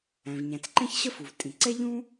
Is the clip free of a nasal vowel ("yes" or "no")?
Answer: no